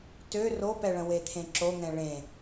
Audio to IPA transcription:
t ø r o p ɛ ɭ ə̃ w e t̪ʰ ẽ ǁ o ŋ ɛ̃ ɭ ẽ

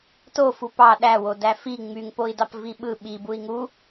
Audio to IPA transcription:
t o f u p ɑ ɗ æ w o d æ f i ŋ͡m y ŋ p o i̯ d ɑ p v i ɓ ɯ ɓ i b u i̯ ŋ u

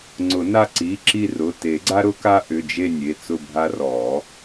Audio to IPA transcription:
ŋ͡ǀ ʊ˨˩˦ n a˦˨ ǀ i˩˧˩ ǁ i˦˨ r ʊ˩˧˩ t e˨˩˦ ɡ͡ǀ a˦ ɾ ʊ˦ k a˦ ʔ ʏ˩˧˩ d͡ʒ e˦˨ nʲ e˩˧˩ t͡s ʊ˦˨ bʱ a˦ r ɔ˨˩˦

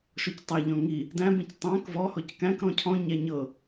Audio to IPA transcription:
ʃ ɔ c tˤ æ ʎ ɔ̃ ŋ i | d æ̃ b ĩ c tˤ æ̃ k v ɔ h ɔ c k æ̃ k ɾ ɔ̃ cʰ ɔ̃ ɲ æ ɲ ɤ

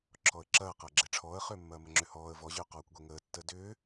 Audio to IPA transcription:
ǁʰ ɔ ə̯ ǁ ɐː q ɐː ɡ͡ǁ e ʈ͡ʂʰ ɔː ə̯ χ ʏː mː ɐː m ə ŋ͡ǁ ʏ h ɔː ə̯ v ɔ ʑ ʏː q ɔː kʷ ɡʷ e ŋ əː tː əː d ʏː

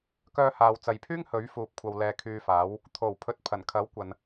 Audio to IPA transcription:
k œː˧ h aː˨ w t͡s ɐ˨ j pʰ yː˥ ŋ h ɵ˨˥ ɥ f uː˨ p̚ kʷʰ ɐ˨ w l ɛː˨˧ kʰ yː˧ f aː˨˥ w | t̪ʰ o˨˩ w pʰ ɵ˨ t̚ pʰ ɐ˨˩ n kʰ ɐ˨˥ w kʷ ɐ˨ n

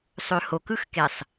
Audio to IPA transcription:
sˤ ø h o k ɯ x k e sˤ

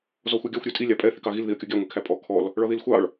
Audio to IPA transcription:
z ɔ xʷ ɛ ɡʲ ɑ xʷ ɾʲ ɜ tʼ i lʲ ɑ pʼ ɛ θ i k ɑ ɣ i l ð i ə̯ kʲ ɔ ɡʲ ɑ ŋʷ i kʰ æ pʼ ɔ kʰ ɔ l | ɭ ɒ ð i l xʷ ɑ ɭ

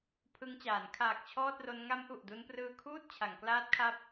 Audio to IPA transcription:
pʰ ɯ˧ ŋ t͡ɕ aː˩˦ n kʰ aː˨˩ k̚ t͡ɕʰ ɔː˥˩ t̚ r o˦˥ n ŋ a˦˥ m ʔ u˨˩ ʔ d u˧ n p r ɯː˧ kʰ uː˥˩ t̚ t͡ɕʰ a˩˦ ŋ k l aː˦˥ t̚ kʰ a˦˥ p̚

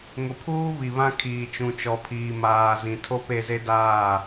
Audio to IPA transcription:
ŋ ʊ˨ pʰ uː˦ β i˨ β ã˦ kʰ iː˨ t͡ʃ ũ˨ t͡ʃ ɔ˨ pʰ iː˨ m aː˨ z ĩ˨ tʰ o˦ p e˦˨ z e˦ d aː˦˨

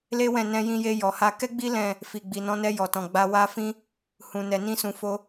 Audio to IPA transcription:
l e˦ w ɛ̃˦˨ n ɛ̃˧ j ĩ˧ j e˧ j ɔ˨ h a˧ k ɛ˦ ɡ͡b i˦ l ɛ̃˦˨ | f i˨ ɡ͡b i˨ n ɔ̃˨˦ n ɛ˧ j ɔ˨ t ɔ̃˨ ɡ͡b a˧ w a˦ f ĩ˦ | h ũ˨ n ɛ˨ n ĩ˧ s ũ˨ f o˧

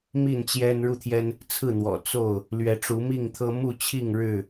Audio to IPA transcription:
m i˥˨ n t͡ɕ j ɛ˦ n ɻ u˥˨ t̪ʰ j ɛ˦ n | t͡sʰ ɹ̩˥˨ n̪ w ɔ̰˨˩ t͡s o˥˨ ʊ̯ | l ɥ ɛ˨˦ ʈ͡ʂ u˨˦ m i˥˨ ŋ t̪ʰ ɤ˦ m u˥˨ t͡ɕʰ i˥˨ ŋ ɻ ɻ̩˥˨

